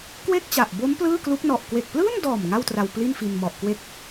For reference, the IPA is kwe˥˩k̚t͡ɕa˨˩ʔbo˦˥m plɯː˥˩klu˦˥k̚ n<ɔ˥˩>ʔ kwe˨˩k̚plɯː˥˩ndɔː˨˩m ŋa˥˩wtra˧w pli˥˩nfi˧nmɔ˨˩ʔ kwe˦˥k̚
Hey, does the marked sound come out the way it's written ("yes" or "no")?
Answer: no